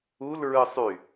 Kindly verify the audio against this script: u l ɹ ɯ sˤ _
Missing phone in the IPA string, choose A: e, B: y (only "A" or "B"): B